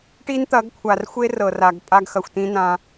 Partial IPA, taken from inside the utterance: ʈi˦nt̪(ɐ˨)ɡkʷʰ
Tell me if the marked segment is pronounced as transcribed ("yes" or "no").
no